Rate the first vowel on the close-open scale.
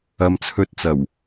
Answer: open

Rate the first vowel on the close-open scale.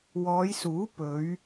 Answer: mid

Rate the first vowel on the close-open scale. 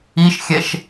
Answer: close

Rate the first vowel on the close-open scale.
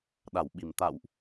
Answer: open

